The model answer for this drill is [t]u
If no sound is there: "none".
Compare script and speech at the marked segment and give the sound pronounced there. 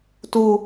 t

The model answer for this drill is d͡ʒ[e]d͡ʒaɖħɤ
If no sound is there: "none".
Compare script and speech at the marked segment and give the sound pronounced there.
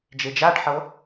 e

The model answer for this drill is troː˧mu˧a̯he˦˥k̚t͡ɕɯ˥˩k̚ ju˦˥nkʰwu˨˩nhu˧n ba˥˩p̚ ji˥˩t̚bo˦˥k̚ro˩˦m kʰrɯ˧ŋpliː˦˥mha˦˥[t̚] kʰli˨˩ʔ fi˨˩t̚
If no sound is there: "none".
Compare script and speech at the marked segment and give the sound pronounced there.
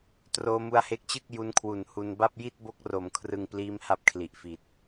p̚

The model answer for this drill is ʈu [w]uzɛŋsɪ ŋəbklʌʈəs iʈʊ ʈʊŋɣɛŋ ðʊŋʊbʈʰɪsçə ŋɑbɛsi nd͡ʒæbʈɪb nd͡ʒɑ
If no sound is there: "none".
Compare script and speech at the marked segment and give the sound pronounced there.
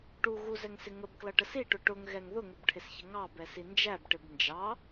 ɣ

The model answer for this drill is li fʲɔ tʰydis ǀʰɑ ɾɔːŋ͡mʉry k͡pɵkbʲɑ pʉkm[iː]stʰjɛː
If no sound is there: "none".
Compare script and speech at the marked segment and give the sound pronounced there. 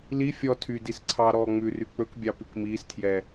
iː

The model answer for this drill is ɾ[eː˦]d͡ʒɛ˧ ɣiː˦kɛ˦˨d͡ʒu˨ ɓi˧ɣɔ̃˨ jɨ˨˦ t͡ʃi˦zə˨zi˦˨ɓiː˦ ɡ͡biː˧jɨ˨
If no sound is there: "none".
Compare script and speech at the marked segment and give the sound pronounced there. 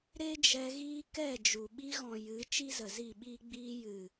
e˦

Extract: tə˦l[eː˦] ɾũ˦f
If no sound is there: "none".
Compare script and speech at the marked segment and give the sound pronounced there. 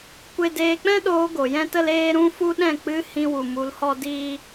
eː˦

